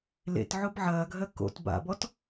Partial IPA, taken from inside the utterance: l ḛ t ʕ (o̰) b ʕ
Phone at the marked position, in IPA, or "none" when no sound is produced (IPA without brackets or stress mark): o